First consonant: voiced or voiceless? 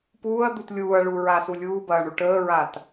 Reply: voiceless